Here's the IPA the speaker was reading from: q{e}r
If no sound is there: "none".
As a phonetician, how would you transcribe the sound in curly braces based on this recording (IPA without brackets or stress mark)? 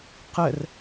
ɛ